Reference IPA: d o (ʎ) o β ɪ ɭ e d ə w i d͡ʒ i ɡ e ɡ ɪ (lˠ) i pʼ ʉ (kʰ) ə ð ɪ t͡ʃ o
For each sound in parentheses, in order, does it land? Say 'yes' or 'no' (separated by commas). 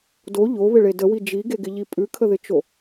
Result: yes, no, yes